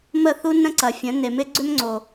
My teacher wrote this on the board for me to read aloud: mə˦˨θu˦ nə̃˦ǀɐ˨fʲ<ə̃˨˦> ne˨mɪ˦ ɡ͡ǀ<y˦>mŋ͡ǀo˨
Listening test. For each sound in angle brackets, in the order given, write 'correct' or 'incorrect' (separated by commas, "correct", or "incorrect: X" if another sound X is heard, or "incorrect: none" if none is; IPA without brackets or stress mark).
correct, incorrect: ʏ˦